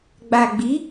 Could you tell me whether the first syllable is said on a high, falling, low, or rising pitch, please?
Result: low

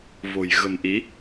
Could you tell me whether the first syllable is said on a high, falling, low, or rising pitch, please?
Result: low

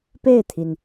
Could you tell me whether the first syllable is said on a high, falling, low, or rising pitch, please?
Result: falling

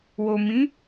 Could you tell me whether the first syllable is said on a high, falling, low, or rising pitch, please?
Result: low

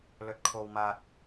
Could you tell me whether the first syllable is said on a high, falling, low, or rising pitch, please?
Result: low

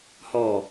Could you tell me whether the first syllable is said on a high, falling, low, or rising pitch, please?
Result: low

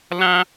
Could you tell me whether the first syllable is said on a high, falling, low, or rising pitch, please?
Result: high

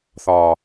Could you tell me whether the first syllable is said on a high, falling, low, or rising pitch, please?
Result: low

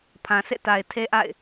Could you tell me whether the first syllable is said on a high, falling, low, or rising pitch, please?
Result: low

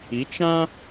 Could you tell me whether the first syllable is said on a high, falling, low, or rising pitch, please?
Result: rising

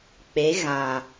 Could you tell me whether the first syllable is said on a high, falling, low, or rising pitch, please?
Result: rising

